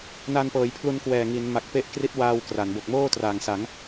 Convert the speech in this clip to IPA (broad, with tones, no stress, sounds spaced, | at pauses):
n a˧ n p ɤː˩˦ j pʰ l u˧ n k w ɛː˨˩ ŋ i˩˦ n m a˨˩ k̚ p e˦˥ ʔ k r i˦˥ t̚ w aː˧ w k r a˩˦ n b o˨˩ k̚ m oː˥˩ t r aː˨˩ ŋ s a˩˦ ŋ